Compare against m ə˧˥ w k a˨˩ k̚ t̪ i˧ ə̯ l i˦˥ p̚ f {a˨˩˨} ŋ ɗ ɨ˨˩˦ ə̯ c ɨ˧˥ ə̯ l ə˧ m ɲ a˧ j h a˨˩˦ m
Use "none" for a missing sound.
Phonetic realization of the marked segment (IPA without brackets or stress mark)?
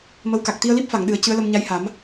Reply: a˨˩˨